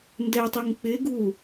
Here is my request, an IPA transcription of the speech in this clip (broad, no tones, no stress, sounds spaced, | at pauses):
n d ɛ tˤ u ŋ k͡p ɪ ɡ u